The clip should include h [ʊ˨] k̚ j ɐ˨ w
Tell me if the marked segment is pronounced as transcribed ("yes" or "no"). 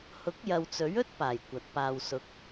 no